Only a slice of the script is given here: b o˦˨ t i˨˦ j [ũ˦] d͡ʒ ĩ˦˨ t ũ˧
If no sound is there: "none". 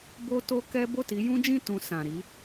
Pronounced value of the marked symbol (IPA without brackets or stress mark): ũ˦